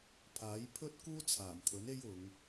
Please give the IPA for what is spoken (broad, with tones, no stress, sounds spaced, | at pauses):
pʰ aː˨˥ j pʰ ɵ˥ t̚ k uː˥ t͡sʰ aː˨˩ m t̪ʰ ɵ˨˥ n e˥ j ʊ˨˧ ŋ